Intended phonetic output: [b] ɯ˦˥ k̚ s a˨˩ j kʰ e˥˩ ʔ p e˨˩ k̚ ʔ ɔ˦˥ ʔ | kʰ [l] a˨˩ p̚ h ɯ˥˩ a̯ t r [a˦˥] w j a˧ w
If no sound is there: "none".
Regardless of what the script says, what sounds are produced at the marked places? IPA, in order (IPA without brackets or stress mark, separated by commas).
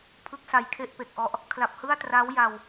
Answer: pʰ, l, a˦˥